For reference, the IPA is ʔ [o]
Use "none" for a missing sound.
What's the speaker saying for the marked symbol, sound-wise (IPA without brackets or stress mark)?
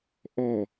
ɔ